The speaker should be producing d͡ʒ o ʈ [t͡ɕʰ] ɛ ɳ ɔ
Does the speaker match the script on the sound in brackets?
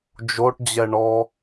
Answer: no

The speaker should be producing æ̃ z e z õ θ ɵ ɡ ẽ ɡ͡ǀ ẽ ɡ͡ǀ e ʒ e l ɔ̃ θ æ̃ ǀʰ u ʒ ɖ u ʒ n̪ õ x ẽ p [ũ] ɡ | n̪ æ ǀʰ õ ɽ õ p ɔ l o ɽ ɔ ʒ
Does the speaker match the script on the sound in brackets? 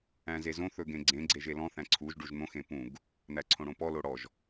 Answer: yes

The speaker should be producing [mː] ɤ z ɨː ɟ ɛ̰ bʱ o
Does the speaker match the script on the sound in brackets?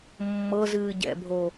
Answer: yes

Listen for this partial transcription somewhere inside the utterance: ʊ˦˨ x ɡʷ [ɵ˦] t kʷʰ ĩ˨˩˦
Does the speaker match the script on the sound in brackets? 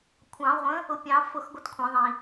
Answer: no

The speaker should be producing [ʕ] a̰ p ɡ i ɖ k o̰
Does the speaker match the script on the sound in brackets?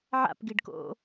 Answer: yes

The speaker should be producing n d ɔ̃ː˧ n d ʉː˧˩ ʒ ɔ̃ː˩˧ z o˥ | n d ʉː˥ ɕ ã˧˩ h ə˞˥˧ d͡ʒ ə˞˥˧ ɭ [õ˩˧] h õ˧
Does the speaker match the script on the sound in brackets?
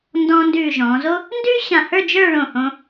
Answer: no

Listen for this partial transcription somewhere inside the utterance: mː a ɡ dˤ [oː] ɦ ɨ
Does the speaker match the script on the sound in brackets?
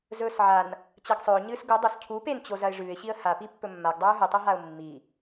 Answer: no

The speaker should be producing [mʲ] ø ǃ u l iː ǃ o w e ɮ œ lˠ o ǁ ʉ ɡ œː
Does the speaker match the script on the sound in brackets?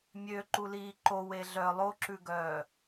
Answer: yes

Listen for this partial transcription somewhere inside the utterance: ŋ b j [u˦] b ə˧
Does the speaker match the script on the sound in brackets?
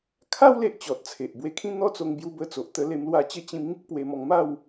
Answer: no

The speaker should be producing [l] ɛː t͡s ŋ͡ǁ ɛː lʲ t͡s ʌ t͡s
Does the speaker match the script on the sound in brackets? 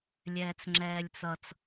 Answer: no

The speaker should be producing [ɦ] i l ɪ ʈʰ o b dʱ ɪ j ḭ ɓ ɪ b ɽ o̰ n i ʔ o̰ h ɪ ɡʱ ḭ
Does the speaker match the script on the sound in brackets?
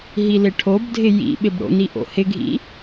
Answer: yes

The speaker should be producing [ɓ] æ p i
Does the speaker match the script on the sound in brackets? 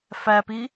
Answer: no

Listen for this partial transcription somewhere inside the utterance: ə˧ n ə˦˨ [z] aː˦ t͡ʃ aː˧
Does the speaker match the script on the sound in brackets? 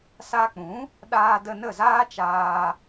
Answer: yes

